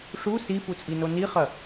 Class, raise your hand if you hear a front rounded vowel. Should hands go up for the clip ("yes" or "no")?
no